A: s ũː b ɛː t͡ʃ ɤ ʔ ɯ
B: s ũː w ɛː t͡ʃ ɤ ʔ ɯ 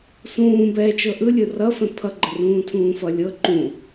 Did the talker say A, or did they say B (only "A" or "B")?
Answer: A